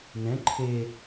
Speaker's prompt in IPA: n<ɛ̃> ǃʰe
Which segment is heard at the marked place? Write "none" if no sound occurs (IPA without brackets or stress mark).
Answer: ɛ̃